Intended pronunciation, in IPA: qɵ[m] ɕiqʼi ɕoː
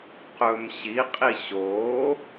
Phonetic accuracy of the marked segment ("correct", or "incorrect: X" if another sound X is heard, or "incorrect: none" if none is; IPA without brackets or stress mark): correct